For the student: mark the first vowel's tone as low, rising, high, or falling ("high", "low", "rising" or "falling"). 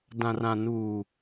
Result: low